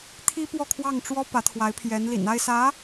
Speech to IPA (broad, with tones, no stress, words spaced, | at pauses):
t̪ʰi˥pwɔ˥˧kʰwɑ˥˩ŋʈ͡ʂwɔ˥ pä˧˥t̪ʰwa˧˥ɪ̯pʰjɛ˧˥n lḭ˨˩na˥˩ɪ̯sä˧˥